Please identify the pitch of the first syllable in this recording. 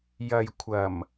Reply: low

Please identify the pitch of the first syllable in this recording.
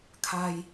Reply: low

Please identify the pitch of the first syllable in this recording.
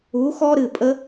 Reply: rising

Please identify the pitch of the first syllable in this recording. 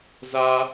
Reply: high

